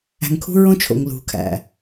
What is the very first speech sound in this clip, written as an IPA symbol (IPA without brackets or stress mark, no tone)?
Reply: æ̤